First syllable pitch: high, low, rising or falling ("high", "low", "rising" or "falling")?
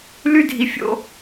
high